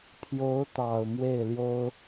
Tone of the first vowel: rising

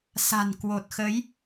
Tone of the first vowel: low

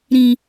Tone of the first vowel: low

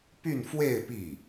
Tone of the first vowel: falling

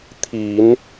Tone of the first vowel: low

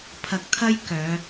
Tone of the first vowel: low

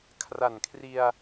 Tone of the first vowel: low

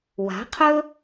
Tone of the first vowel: rising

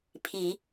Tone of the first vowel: low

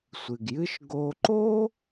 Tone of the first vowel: low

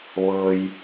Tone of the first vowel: low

